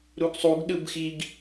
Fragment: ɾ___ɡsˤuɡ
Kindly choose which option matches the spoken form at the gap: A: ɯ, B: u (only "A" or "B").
B